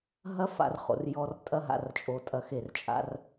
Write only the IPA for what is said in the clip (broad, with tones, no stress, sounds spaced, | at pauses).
ɦ ɐ˦ f a̰˧ r χ o̰˨ r j ɔ˧ r tʼ ɐ˦ ɦ a̰˧ r t͡ʃʼ o˧ tʼ ɐ˧ x e˦˨ r t͡ʃʼ a̰˦ r